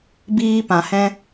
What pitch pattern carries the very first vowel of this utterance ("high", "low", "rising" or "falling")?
high